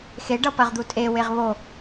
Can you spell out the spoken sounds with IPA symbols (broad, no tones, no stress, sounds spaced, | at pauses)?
x e ɖ ʌ p ɐ ʁ d̪ u tʼ e w e ʁ β o